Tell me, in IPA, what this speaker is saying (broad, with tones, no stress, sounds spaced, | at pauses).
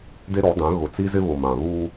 d e˦ ɾ ɔ˨˦ d ã˨˦ ɣ ʊ˨ t͡s i˦ z ɪ˦ β ʊ˨ m ã˨ β u˦